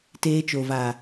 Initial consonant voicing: voiceless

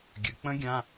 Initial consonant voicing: voiced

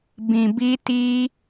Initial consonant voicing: voiced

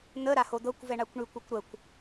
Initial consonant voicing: voiced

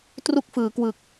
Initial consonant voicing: voiceless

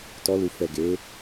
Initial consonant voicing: voiceless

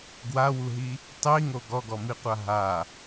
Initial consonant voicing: voiced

